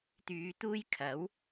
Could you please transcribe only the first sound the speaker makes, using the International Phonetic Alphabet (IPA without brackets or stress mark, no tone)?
t̪